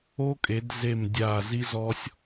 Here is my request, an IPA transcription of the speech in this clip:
o˥ kʼ e˨˦ d z e˦˨ m dʲ aː˦˨ z i˥ z ɔ˥ sʲ

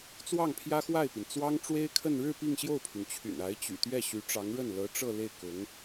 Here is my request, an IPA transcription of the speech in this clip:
t͡s w ɑ˥˩ ŋ pʰ j ä˥ x w a˥˩ ɪ̯ p i˩ n t͡s w ɑ˥ ŋ ʈ͡ʂ w e˥ ɪ̯ kʰ ə˥˧ n ɻ ɻ̩˥˧ p i˥˧ ŋ ɕ j o˥˩ ʊ̯ pʰ y˩ n t͡ɕʰ y̰˨˩ n a˧˥ ɪ̯ t͡ɕ y̰˨˩ t̪ ɥ ɛ˥˩ ɕ y˧˥ ʈ͡ʂ ɑ˧˥ ŋ ɻ ə˥˩ n l ɤ˧˥ ʈ͡ʂ ɤ˥˧ l e˥˩ ɪ̯ k ʊ˧˥ ŋ

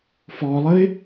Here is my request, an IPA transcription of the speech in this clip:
f ɔ lˠ ə ɪ̯

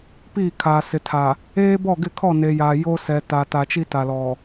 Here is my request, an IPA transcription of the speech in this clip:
p iː˦˨ kʰ aː˨ s ɪ˨ tʰ a˨ | eː˦ b ɔ˦˨ ɡ ɪ˦˨ kʰ ɔ˦˨ n e˨ j a˨ j o˦ s ɛ˨ t a˨ t a˨ t͡ʃ i˦ t a˨ l ɔ˨

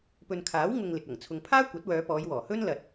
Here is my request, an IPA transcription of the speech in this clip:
p ɵ˨ n kʰ aː˨˥ w ŋ ʊ˧ ŋ l ɪ˨ k̚ ɐ˨˩ ŋ t͡sʰ ʊ˨ ŋ pʰ aː˥ kʷ ɐ˨˥ t̚ w œː˨˧ p ɔː˨˧ j w ɔː˨˩ h ɵ˥ n l ɐ˨ t̚

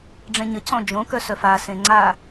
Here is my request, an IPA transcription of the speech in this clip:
ɖ͡ʐ ẽ ɲ ə cʰ ɔ̃ d͡ʒ õ k œ s œ f a s ẽ ŋ͡ǀ a

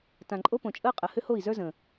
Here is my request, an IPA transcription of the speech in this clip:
t ã˨ ǃʼ o˦ p õ˨ t͡ʃʼ əː˦ qʼ ə˨ h ʏ˦ h o˦˨ i̯ z ə˞˦ z ə̃ː˨

